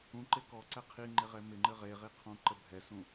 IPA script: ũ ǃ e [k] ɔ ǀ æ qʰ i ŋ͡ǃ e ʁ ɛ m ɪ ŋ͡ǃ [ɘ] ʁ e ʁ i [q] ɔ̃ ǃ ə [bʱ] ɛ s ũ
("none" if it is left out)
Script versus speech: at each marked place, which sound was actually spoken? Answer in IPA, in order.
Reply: k, ɘ, qʰ, bʱ

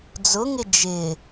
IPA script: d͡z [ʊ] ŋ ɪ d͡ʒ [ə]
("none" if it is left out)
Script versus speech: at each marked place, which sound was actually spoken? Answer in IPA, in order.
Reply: ʊ, ɪ

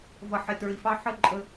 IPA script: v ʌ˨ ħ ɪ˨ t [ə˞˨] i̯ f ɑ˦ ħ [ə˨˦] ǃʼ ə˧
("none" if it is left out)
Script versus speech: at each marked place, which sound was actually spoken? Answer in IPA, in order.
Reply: ə˞˨, ə˦

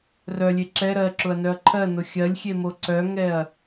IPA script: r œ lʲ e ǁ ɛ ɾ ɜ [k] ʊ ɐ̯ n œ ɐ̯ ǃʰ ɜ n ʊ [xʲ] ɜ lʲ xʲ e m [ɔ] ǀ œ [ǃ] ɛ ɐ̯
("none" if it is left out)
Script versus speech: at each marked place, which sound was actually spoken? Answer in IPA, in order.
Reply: ǁ, xʲ, o, ŋ

